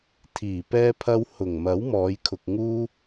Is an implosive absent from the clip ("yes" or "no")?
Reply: yes